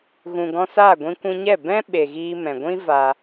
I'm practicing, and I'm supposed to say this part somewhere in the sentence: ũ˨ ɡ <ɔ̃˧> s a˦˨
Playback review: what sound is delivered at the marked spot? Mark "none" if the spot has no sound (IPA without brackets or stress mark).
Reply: ɔ̃˧